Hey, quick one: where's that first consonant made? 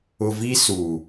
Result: lips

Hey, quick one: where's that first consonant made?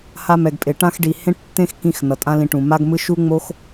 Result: throat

